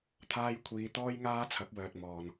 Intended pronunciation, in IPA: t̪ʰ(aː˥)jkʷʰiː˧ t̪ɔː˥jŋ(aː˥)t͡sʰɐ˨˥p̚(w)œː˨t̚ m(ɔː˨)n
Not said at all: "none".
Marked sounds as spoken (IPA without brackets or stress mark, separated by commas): aː˥, aː˥, w, ɔː˨